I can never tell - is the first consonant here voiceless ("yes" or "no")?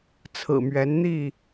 yes